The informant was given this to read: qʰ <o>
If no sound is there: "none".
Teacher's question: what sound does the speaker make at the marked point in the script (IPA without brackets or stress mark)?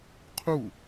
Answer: u